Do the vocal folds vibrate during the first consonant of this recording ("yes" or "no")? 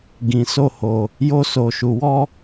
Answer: yes